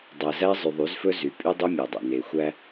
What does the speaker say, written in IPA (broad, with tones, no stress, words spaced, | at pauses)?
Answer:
dˤæ˨zæ˦ zˤy˨ðˤy˨˦zfɵ˦ zy˨˦pʼy˦dˤø˦ mʲæ˨dˤɑ̰˨ ne˨ xʷæ˦